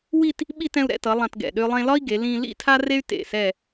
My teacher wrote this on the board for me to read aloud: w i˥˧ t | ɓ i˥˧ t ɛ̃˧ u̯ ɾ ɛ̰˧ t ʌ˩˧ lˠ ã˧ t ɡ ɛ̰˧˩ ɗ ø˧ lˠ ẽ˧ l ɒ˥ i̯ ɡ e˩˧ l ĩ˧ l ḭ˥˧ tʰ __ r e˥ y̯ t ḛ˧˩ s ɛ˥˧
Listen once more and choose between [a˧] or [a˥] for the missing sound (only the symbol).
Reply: a˥